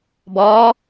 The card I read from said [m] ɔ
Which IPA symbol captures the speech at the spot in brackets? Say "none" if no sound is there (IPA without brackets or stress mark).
b